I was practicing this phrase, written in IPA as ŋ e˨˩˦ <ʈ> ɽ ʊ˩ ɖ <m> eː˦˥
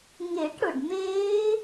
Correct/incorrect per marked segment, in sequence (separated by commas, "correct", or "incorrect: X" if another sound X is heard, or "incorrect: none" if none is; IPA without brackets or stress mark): correct, correct